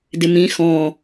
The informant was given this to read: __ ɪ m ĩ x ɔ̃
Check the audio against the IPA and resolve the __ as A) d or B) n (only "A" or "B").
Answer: A